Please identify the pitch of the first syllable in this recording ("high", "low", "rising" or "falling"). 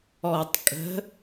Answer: low